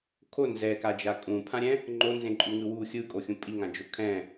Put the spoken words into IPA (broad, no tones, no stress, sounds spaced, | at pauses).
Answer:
kʰ o n z ɛ k a d͡ʒ a kʼ ũ pʰ ã ɾʲ ɛ̃ | ŋ͡ǃ o n z ẽ ǃʼ u ŋ ɯ w u xʲ ɯ kʼ o xʲ ũ pʼ i ŋ ã d͡ʒ o kʰ ɛ̃